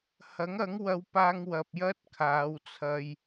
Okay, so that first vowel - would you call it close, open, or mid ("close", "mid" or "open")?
open